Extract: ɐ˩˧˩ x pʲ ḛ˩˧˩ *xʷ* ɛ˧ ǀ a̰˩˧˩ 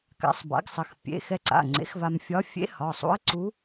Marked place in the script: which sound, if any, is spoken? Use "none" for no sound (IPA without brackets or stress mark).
x